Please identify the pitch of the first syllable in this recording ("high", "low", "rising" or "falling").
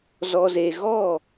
low